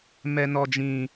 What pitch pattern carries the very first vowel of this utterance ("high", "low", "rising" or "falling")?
high